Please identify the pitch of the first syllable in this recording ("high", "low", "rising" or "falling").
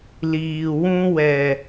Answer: low